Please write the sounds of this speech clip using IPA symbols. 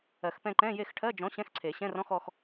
ɜ˨˩˦xpɛ̃˦˨ǃɛ̃˧˥˧ je˦˨xʈʰɜ˧˥˧d͡ʒɔ̃˨˥ ɕɛ̃˧˥˧xǀʰe˨˩˦ɕɛ̃˧˥˧rɔ̃˧˥˧x ɔ˦˨x

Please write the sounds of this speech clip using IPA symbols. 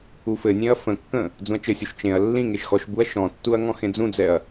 ufɘnʲẽɐ̯ fə̃kːə̃ | d͡zũɐ̯t͡ʃɘsʲuʃ t͡ʃẽɐ̯ lːĩŋeʃ xɔʃbuɐ̯ ʃɔ̃tːuɐ̯ ŋɔ̃xẽd͡zũd͡zɛɐ̯

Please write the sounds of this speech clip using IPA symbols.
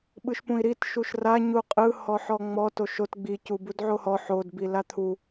ɓɯʃpũi̯ɾit ʃuʃra ɲuqʼɯ hɔħɔŋ͡mɔ toʃot ɡ͡bi cubudʕohɔ ħod bilat̪ʰu

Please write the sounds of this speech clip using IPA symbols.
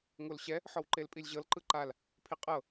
ŋolɕɛ | ħɔwǃelpʼilʲʑɤl ǃɯǃal | pʰiqʼɤ

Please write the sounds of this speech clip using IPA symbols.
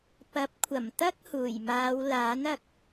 pɐ˨˥p̚kʷʰɐ˨˩m t̪ɐ˥k̚huː˨˩jmaː˨˧w laː˨˥nɐ˨k̚

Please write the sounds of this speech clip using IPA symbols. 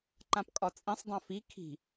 ǃãpkʼɒt͡sʼĩsˤdˤã fi kʰi̤

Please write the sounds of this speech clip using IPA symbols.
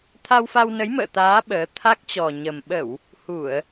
t̪ʰa˧wfa˧wnə˨˦j mə̰ː˧˨t̪aː˨˦ ɓəː˨˦ t̪ʰa˦˥k̚t͡ɕɔ˨˩ ɲə˨˩m ɓə˧˩˨w | hu˧˩˨ə̯

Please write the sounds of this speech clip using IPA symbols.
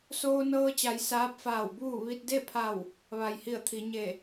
soː˧nɤː˧t͡ɕa˩˧j saː˧˥p̚faː˧˩wbuː˥˨ ʋi˧t̚de˥˨pʰa˧˩w | ʋa˩jhi˧˩ə̯t̪ʰi˩˧ ɲe˧˩

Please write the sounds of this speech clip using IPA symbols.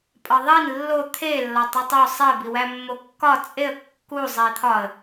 pʼɒðˤin lːo t̪ʰe lːɒtˤutˤo sˤe biwæmːokːɒ t͡sʼeə̯ kːu zˤet̪ʰɒə̯

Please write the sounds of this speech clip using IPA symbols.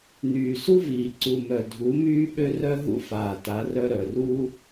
n̪yː˨su˦viː˨ ǀu˨mœ˨ dʱu˨˦myː˦ɓø˦rœ˦ ɦṵ˦faː˨ta˨˦ rœ˦ɾœ˨ru˦

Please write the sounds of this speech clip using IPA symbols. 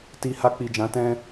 ti˧ ha˧k͡pi˨d͡ʒã˨˦ tɛ̃˦

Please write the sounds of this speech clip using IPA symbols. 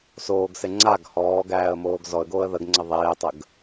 soːɡse ŋ͡ǀaɡ hɔːɡæːə̯moːɡ zɔə̯ɡoːə̯ ðəɡŋ͡ǀə ðˤeːtˤəɡ

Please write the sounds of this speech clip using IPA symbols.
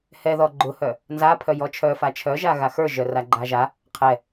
hɛðɔ ɡ͡ǃʊhœ | nzapʰœ jɔt͡ʃʰœ fat͡ʃʰœʒa ɣaxə˞ʒœ raɡ͡ǃaʒa | qʰɛ

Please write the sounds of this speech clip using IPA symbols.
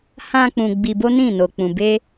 hã˧ k͡pũ˧ ɡ͡bi˧bo˦nĩ˦˨ no˧k͡pũ˧ be˦

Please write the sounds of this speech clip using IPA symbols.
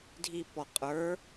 dʱipɔ qʼə˞

